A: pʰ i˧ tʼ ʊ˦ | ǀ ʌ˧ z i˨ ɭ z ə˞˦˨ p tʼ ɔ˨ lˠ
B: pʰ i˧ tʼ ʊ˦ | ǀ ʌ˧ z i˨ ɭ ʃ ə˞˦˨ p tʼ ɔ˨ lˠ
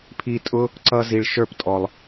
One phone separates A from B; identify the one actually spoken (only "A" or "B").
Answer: B